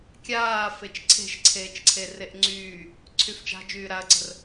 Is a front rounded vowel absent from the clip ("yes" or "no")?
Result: no